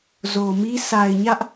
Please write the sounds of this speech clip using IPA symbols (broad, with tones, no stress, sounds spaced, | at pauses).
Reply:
z o˨ m i˦ sʰ a˨ ɪ̯ ɲ ä˦ ʔ